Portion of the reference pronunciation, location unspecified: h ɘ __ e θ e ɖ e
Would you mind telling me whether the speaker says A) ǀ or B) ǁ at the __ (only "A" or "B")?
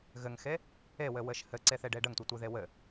A